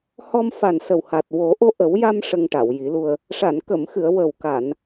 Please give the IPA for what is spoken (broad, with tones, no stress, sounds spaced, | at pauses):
h ɔ˧ m f a˨˩ n s ə˨˩ w h a˨˩ t̚ w o˨˩˦ ʔ o˧ ʔ ə˨˩˦ w j a˧ m ʂ ə˧ ŋ ʈ a˨˩˨ w j i˨˩˦ l u˧ ə̯ | ʂ a˨˩˨ n k ə˨˩˨ m x ɨ˨˩˨ ə̯ w ə˨˩ w k a˨˩˨ n